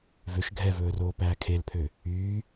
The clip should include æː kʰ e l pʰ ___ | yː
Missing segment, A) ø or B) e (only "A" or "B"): A